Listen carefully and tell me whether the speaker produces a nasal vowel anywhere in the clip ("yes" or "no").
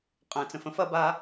yes